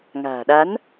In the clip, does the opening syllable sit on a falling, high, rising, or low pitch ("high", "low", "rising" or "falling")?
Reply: low